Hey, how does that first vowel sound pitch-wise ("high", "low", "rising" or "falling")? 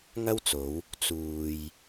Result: high